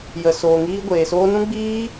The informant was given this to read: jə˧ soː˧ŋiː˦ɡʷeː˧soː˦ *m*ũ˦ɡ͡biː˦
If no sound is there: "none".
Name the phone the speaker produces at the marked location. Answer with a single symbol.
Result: n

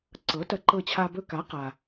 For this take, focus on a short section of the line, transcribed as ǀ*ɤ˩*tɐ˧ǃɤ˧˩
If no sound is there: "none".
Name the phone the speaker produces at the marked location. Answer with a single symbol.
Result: ɤ˩˥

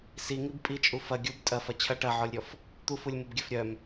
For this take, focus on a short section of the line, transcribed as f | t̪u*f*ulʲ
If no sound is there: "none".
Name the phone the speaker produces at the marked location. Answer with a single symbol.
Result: f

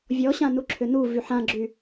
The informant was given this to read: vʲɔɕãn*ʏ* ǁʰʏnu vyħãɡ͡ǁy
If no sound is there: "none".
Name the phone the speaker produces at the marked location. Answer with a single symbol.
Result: u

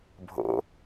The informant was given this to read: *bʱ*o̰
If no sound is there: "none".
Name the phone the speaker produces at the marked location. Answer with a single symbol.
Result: bʱ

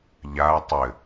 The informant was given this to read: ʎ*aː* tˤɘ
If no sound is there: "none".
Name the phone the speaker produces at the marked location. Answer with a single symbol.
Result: aː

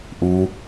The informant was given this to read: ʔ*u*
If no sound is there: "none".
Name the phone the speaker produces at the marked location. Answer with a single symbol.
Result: u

